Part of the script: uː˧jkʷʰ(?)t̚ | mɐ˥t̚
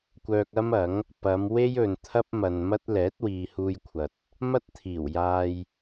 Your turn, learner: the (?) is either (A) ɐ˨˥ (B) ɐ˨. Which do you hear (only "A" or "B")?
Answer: B